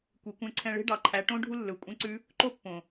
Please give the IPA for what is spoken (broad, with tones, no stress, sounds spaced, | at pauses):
kʷ i˨ kʷ ɛ̃˧ ǀʰ ɛ̃˧ ɭ e̤˦ ɖ ɑ˨ ǃʰ æ˨˦ ʈ õ˦ ɖʱ u˦ lː ɵ˨ kʷʼ ɛ̃˦ ǀ ʉ˦ | ǃ o˦ pː õ˨